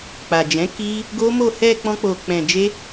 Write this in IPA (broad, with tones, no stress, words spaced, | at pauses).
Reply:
k͡pa˨d͡ʒɛ̃˨˦ ki˦ | ɡo˦mo˦˨ hɛ˧ k͡pɔ̃˦k͡po˧k͡pɛ̃˧ d͡ʒe˦